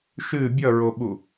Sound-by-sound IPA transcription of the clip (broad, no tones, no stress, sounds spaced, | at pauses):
ʃ ɨ bʲ ʌ ɹ o ɓ u